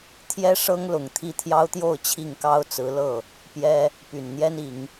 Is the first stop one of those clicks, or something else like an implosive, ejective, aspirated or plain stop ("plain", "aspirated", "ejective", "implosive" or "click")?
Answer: aspirated